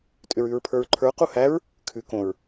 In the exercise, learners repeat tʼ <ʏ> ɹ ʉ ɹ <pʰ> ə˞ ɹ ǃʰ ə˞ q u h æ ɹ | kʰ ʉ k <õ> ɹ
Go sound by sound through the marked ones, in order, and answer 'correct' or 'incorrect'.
correct, correct, correct

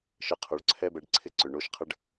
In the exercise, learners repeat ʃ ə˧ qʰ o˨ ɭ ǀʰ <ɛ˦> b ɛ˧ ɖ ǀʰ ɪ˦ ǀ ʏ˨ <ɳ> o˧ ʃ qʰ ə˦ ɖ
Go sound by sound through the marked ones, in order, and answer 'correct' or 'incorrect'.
correct, correct

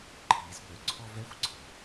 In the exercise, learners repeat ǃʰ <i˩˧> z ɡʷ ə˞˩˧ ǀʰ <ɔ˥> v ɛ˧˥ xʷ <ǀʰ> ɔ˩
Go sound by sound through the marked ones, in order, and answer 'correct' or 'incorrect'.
correct, incorrect: ɔ˧, correct

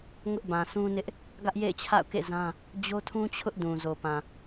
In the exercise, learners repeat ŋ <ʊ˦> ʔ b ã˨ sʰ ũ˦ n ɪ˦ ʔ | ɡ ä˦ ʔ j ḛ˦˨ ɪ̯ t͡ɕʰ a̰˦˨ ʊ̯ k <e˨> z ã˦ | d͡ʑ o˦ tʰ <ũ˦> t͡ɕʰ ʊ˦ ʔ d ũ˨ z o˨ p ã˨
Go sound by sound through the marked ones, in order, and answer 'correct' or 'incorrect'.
correct, incorrect: ḛ˦˨, correct

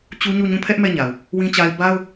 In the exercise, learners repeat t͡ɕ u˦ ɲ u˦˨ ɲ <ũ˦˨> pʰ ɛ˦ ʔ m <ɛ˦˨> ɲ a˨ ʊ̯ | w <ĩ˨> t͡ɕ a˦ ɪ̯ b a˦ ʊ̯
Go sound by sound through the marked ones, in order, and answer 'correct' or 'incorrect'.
correct, correct, incorrect: ĩ˦

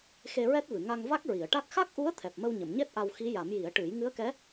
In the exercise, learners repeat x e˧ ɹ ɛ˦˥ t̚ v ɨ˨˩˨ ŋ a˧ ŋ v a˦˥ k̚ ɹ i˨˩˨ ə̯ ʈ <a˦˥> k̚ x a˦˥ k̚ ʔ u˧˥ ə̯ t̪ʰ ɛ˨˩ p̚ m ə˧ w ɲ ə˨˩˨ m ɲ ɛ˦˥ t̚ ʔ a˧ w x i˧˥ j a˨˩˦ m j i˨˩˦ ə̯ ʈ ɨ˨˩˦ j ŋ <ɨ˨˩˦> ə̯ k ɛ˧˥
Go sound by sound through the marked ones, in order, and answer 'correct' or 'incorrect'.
correct, incorrect: ɨ˧˥

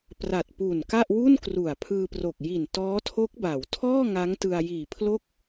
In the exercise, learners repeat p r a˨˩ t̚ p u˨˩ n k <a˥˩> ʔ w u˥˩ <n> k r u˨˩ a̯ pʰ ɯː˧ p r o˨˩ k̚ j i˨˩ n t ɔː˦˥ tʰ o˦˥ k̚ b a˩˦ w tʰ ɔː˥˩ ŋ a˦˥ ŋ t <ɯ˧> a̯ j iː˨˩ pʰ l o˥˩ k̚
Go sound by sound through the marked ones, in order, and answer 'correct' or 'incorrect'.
correct, correct, correct

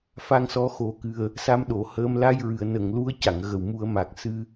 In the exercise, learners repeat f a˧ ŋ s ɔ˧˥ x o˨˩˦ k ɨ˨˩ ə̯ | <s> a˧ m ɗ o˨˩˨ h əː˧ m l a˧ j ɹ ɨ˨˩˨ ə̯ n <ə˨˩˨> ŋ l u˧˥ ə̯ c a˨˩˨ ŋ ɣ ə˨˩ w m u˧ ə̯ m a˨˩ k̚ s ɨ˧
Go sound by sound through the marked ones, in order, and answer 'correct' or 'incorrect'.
correct, correct

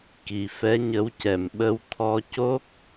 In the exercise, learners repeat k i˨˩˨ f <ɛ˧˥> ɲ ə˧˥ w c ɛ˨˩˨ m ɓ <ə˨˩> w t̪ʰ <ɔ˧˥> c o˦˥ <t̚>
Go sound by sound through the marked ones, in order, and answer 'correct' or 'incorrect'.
correct, incorrect: ə˧, incorrect: ɔ˧, incorrect: k̚

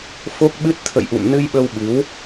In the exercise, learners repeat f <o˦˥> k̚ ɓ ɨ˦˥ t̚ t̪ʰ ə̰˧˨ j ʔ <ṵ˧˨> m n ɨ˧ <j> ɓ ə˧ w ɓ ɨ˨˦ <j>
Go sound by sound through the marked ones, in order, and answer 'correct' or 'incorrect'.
correct, correct, correct, incorrect: w

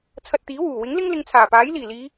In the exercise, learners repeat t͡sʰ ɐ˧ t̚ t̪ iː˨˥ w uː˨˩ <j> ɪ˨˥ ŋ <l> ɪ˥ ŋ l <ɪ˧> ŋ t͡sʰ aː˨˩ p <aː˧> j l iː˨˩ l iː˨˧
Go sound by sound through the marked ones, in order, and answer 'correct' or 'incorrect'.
incorrect: w, correct, correct, incorrect: aː˨˥

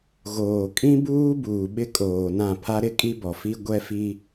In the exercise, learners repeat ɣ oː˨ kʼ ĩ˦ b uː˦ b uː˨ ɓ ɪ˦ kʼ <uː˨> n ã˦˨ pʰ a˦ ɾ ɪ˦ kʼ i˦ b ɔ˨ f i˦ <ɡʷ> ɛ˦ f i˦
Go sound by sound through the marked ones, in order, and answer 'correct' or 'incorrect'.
incorrect: oː˨, correct

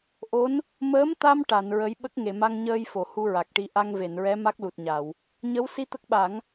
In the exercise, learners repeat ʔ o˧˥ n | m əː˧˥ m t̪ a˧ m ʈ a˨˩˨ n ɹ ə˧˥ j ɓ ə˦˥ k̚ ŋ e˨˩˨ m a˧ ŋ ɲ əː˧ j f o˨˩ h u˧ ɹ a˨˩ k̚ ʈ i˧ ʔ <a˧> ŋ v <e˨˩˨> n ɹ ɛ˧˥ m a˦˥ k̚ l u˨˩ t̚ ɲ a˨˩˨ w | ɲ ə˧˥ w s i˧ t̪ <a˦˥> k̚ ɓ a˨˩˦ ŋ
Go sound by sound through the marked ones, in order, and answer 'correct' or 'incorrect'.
correct, correct, incorrect: ə˦˥

